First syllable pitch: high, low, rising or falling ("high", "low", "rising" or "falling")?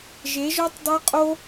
rising